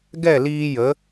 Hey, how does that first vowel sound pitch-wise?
falling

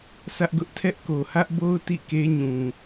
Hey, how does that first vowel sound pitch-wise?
high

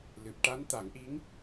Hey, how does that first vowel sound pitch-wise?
low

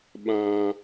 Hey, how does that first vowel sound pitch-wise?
low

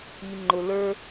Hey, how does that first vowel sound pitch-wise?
low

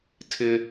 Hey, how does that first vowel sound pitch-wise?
high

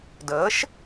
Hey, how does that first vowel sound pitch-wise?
rising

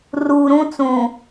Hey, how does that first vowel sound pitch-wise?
low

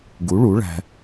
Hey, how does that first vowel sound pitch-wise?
rising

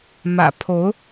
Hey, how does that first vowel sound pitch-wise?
low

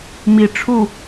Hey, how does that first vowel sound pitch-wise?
low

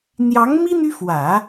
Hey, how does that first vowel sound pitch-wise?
rising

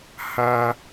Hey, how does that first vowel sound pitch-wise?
high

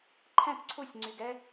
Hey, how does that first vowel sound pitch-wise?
falling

